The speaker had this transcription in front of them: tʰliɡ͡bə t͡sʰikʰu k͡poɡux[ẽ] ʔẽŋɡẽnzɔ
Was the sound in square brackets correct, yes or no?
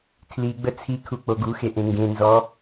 no